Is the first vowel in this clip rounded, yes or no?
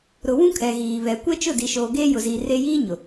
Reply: yes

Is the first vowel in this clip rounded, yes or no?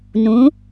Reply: yes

